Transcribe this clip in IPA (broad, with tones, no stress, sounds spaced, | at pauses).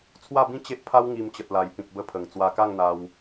t͡sʰ w a˥˧ b ĩ˦ t͡ɕ e˦ ʔ pʰ a˦ w ŋ i˧ m t͡ɕ ə˨ t̚ l a˨˩ j p ĩ˨ k̚ b ə˧ pʰ ə˨˩ ŋ t͡s w a˧ k a˥˧ ŋ n̪ a˧ w